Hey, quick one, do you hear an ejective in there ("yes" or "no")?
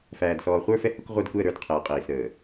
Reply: yes